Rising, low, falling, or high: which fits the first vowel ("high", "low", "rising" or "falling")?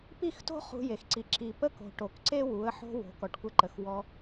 falling